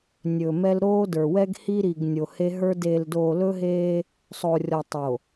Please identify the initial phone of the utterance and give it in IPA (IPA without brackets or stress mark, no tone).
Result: nʲ